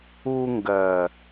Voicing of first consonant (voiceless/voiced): voiced